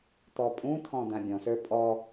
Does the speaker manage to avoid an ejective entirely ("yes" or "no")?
no